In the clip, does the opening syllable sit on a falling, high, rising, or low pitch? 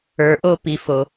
low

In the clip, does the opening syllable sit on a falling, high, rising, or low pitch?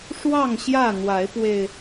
falling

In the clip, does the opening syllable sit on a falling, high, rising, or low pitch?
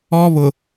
high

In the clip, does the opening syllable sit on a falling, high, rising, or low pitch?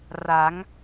rising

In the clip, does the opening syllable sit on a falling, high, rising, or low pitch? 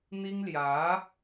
high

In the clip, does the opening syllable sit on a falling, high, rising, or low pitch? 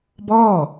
falling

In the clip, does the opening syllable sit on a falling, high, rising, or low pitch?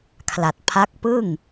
low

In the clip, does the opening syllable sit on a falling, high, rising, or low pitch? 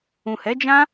low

